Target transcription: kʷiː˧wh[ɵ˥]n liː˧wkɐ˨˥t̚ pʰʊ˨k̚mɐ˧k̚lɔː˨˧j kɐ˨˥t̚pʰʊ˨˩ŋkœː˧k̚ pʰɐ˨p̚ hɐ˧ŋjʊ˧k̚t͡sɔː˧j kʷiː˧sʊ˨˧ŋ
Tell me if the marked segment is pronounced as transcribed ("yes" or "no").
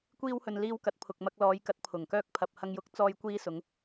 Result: no